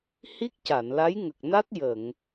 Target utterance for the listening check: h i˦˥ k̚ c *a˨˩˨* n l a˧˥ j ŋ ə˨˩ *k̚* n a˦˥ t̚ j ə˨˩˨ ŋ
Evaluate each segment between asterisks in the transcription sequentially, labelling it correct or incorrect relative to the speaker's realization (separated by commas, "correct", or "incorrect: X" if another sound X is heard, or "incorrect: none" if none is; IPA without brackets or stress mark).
correct, correct